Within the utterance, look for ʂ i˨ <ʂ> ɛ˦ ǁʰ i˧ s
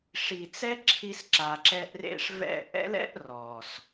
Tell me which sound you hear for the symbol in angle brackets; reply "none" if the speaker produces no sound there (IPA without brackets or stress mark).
t͡s